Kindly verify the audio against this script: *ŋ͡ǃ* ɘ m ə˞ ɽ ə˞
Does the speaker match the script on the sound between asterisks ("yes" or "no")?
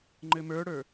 yes